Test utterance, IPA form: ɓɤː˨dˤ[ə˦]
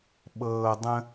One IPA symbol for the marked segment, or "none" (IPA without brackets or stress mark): ə̃˦